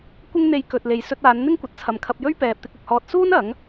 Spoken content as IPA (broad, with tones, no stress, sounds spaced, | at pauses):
kʷ ɪ˥ ŋ n̪ e˧ j k ɵ˨ t̚ l e˨ j s ɵ˧ t̚ aː˨˧ n n̪ ɪ˥ ŋ kʷ ɐ˨ t̚ t͡sʰ ɐ˨ m kʰ ɐ˧ p̚ j ɵ˥ ɥ p ɛː˧ p̚ t̪ ɪ˥ k̚ ʊ˧ k̚ h ɔː˥ t̚ s uː˥ n ɐ˨˥ ŋ